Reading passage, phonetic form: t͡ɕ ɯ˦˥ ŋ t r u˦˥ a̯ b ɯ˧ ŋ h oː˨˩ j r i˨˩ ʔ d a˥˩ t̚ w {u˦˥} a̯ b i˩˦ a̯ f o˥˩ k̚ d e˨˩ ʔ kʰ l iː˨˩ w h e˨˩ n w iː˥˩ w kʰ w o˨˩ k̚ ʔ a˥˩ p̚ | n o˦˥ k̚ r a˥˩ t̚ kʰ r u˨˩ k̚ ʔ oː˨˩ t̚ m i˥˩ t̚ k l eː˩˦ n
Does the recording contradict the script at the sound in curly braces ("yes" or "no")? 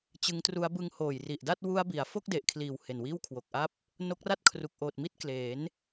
no